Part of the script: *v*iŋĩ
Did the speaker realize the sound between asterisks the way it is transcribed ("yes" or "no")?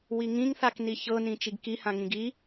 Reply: no